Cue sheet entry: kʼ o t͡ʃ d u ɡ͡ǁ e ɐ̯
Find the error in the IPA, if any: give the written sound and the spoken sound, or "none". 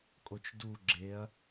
none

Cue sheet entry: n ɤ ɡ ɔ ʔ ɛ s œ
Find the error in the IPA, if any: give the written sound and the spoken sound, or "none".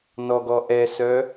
ɤ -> ɔ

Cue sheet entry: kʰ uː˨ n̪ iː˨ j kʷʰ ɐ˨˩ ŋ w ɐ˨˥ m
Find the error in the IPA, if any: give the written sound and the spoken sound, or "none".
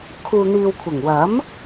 j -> w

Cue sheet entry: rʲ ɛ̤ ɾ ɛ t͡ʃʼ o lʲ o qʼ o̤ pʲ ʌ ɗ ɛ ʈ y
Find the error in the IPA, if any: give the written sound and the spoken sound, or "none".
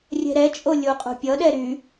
ʈ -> ɾ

